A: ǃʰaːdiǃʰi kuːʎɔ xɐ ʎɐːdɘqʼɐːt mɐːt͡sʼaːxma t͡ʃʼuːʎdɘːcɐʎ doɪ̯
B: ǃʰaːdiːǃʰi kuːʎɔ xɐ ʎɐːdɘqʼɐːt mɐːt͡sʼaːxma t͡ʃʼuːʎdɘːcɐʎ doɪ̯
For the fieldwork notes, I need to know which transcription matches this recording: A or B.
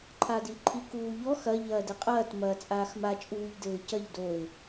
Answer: B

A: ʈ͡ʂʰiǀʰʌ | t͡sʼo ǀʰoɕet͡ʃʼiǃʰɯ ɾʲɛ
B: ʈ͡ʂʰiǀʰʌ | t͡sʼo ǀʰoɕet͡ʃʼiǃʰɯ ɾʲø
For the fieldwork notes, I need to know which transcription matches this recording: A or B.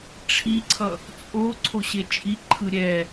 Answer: A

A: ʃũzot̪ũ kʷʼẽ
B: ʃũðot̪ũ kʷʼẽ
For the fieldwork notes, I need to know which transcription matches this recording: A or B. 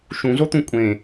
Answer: A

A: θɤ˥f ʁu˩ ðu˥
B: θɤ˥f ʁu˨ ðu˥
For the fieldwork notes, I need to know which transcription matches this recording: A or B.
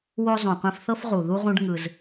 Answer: B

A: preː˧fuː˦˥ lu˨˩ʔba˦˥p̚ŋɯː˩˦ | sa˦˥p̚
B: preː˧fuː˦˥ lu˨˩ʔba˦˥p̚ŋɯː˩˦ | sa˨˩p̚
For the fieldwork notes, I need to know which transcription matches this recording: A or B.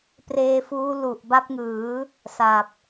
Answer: B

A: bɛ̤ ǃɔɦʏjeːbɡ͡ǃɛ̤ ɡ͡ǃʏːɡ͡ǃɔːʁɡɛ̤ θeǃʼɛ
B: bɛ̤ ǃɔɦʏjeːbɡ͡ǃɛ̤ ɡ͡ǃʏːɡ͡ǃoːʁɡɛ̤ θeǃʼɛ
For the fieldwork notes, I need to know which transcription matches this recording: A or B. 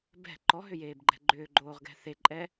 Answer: B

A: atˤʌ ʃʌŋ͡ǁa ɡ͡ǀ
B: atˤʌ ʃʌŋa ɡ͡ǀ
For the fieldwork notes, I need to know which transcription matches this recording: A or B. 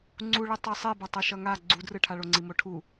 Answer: B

